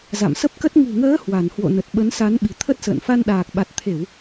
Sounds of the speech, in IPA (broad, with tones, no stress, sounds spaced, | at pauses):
z a̰˧˨ m s ə˦˥ p̚ k ə˦˥ t̚ ŋ ṳ˨˩ ŋ əː˨˦ h w a˧˩ n h w o̰˧˨ n ə˨˩ t̚ ɓ ə˨˦ n s a˨˦ n ɓ i̤˨˩ t̪ʰ ə˦˥ t̚ s ə̰ː˧˨ n f a˧ n ɗ aː˨˩ k̚ ɓ a˨˩ t̚ t̪ʰ e˧˩˨ w